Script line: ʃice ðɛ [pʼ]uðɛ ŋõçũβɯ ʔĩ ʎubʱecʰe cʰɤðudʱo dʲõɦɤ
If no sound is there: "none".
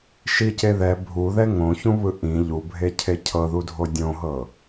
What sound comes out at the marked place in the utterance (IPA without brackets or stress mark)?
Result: bʱ